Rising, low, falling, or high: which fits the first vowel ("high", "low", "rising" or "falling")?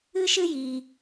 high